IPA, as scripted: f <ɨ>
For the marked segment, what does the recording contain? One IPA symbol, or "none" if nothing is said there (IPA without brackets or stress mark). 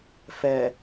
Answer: ɛ